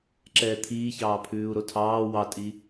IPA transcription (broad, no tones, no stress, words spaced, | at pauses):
ǁɛːt̪ʰiː çɑːpʰʉːu̯ɾotʰɑː wɑtʼi